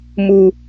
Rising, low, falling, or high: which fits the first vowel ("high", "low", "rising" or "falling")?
low